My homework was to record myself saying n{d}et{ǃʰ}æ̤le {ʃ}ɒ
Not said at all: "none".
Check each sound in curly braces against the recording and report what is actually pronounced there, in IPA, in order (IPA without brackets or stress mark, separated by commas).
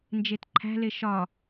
d͡ʒ, ǃʰ, ʃ